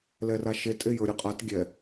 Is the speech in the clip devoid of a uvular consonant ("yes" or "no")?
no